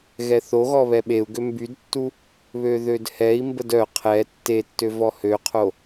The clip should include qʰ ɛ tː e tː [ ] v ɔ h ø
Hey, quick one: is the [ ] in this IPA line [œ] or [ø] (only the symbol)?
ø